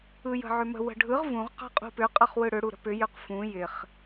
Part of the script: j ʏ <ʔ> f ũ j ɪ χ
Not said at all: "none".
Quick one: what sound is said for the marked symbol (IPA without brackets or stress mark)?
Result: q